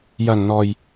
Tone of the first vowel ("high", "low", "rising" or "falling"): low